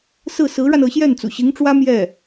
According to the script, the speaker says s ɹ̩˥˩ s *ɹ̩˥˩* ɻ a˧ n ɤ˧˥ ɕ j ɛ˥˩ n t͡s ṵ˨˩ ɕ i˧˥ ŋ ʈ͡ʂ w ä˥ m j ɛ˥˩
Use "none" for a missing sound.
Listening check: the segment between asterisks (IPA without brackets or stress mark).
ɹ̩˧˥